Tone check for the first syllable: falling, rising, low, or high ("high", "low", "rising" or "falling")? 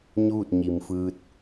falling